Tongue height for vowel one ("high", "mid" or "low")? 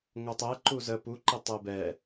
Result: mid